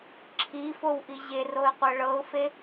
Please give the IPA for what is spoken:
ǁʰ i f o w ʔ i ʑ e r o ɪ̯ qʷ ɤ ɭ ɤ ʊ̯ f e

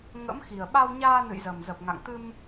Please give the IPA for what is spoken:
ŋ ə̰˧˥ m x i˨˩ ə̯ ɓ a˧ w ɲ aː˧ n ɨ̰˧˨ j z ə˨˩ m z ə˨˩ p̚ ŋ a̰˧˨ ŋ t̪ ɨ˧ m

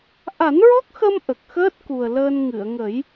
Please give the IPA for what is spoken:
ʔ a˨˩˦ n ɹ ɔ˦˥ k̚ x ə˧ m ʔ ə˨˩ k̚ x əː˦˥ t̚ k u˨˩ ə̯ l əː˧ n ŋ ɨ˨˩˨ ə̯ ŋ ə˨˩˦ j

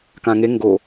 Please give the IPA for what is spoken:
k ã ŋ e ŋ ɡ o

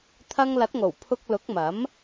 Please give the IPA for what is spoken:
t̪ʰ ɐ˧ ŋ l ɐ˨˥ t̚ ŋ o˨˩ w pʰ ʊ˧ k̚ l ʊ˨˥ k̚ m ɐ˨˥ m

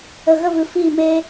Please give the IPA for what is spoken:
ə˨ ɣ ə˦˨ v ɨ˨ f iː˦˨ m eː˦

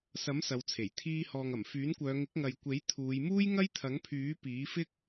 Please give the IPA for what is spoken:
s ɐ˨˥ m s ɐ˨˧ w t͡sʰ e˨˩ j t̪ʰ iː˧ h ɔː˨ ŋ ɐ˨˩ m f yː˨˥ n kʷ œː˨˧ ŋ ɪ˨˥ k̚ ŋ ɐ˨ j kʷ e˨˥ j t̪ʰ uː˨˧ j m uː˥ j ŋ ɐ˥ j t̪ʰ ɐ˨˥ ŋ pʰ yː˨˥ p iː˨˥ f ɪ˥ k̚

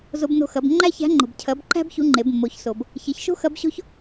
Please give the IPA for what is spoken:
z o˧ b n o̤˧ x ɐ˩˧ b ŋ͡ǃ æ˥ ç æ̤˧˥ ŋ͡ǃ o̤˩ b cʰ ɐ˩˧ b ǃ æ̤˥ b ç u˧˥ ŋ͡ǃ e˩˧ b mː o˩˧ ç s o˩ b | ç e˩˧ ç ʃ o̤˥ x ɐ˧˥ b ɕ o̤˥ ç

